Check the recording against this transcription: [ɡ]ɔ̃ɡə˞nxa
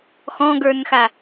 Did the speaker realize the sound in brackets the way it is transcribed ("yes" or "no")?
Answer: no